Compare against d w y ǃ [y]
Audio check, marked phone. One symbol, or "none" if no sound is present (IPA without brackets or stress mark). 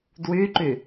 y